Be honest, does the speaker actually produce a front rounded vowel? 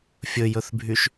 yes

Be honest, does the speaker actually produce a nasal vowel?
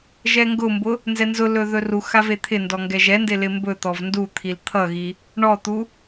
no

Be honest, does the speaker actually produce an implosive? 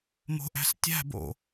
no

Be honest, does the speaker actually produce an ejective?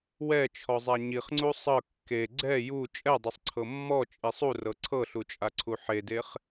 yes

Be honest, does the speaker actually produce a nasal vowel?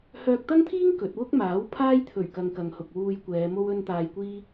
no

